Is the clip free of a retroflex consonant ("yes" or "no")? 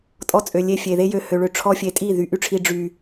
no